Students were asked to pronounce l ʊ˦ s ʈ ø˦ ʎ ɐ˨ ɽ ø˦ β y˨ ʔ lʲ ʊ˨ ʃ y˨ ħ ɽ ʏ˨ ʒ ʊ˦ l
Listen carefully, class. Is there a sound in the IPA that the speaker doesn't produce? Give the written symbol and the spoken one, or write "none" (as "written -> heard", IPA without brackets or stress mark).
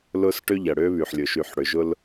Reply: ʔ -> ħ